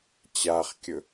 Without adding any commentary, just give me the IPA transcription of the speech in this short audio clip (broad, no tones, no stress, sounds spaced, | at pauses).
t͡ɕ a χ kʲ ɵ